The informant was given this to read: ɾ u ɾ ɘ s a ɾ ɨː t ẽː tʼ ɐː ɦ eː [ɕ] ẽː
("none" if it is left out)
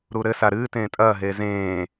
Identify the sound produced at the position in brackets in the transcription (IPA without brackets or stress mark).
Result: z